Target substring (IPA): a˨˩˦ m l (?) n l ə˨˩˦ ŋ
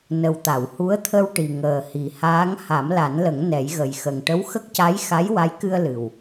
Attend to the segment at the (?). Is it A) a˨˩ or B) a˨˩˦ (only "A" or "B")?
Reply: B